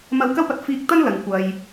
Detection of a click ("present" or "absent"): absent